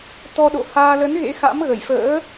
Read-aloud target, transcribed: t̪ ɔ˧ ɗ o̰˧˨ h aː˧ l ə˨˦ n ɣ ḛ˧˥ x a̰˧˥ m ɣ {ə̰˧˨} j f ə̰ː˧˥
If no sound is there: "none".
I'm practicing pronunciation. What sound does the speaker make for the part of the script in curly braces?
ə˧˩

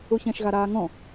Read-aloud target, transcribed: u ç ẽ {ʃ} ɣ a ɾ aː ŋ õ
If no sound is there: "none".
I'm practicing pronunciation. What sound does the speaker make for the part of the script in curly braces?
ʃ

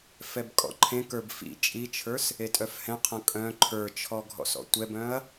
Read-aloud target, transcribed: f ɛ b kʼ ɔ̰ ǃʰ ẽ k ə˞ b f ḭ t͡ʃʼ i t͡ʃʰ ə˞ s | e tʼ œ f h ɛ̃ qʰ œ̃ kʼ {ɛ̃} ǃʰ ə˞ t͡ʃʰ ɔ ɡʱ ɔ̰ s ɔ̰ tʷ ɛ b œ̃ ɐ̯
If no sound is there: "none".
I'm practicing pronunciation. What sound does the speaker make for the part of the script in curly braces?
œ̃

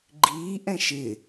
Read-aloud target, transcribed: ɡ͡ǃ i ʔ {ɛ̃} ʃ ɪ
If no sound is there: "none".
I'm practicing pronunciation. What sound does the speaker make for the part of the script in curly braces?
ɛ̃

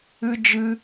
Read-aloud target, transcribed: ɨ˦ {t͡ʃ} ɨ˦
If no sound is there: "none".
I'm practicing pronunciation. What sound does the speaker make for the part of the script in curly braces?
d͡ʒ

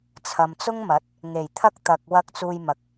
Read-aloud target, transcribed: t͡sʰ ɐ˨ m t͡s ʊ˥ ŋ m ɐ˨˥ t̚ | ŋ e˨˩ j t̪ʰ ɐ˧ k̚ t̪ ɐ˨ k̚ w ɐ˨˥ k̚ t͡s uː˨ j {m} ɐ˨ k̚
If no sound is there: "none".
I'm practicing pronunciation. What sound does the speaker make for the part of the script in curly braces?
m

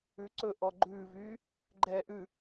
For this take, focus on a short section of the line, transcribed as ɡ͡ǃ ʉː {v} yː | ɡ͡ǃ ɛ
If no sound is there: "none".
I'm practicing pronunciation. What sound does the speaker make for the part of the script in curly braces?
v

